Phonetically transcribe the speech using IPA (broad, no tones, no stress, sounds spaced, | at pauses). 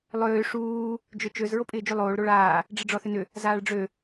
lˠ ʏː ʂ uː | d͡ʒ ø t͡ʃ ø z ɹ o pʼ ɪː d͡ʒ y lˠ oː ɭ ɾ o ɭ aː | ɖ͡ʐ ɪ ɖ͡ʐ ɔ θ ʏ n ʏ | z aː ɭ ɖ͡ʐ ø